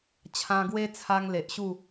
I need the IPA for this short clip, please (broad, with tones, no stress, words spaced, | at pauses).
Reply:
t͡ɕʰã˧ɡwe˦t͡sʰa˧ŋ le˨ʔɕu˥˧